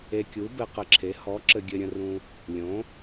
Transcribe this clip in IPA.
e˨kʲu˩˥bɘ˨ qə˨ǁʰe˩˥ hɔ˩˥ ǁɘ˨ ɡʲɘ˨ɾʲə̃˨rũ˨ | lʲõ˩˥

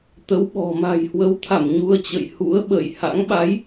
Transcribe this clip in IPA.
t̪ə˨˦wɓɔ̤˨˩ ma̤˨˩jhwə˨˦wt̪ʰa˧˩m ɲu˧ə̯t͡ɕə̰˧˨jhṵ˧˥ə̯ ɓə̰˧˨j ha̰˧˥ŋ ɓa˨˦j

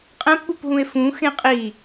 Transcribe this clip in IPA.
qʼɛ̃pɓupɦũe̯ fũxẽ qʼi

